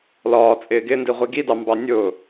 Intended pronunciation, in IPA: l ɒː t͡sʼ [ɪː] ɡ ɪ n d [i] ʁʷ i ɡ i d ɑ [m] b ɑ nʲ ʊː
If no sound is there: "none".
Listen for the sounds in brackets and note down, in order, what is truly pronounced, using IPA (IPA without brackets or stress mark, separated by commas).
ɪː, i, m